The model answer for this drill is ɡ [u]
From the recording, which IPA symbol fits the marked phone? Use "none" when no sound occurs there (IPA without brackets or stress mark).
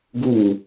u